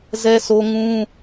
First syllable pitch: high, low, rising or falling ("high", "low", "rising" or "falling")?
high